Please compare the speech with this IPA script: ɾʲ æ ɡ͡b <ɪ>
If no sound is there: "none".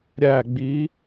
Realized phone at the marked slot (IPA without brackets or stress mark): i